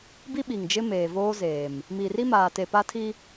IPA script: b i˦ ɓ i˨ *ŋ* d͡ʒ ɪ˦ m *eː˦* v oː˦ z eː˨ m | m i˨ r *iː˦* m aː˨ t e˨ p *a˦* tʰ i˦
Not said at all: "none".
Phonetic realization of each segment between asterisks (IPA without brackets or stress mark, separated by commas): ŋ, eː˨, i˦, a˦